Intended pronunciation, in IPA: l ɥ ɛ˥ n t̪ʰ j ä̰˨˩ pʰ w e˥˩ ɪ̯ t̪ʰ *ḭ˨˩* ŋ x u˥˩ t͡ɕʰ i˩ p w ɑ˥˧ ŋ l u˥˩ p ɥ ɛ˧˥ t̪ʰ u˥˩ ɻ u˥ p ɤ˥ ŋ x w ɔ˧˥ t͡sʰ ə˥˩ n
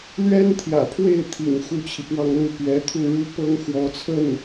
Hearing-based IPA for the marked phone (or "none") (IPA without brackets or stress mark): ḭ˨˩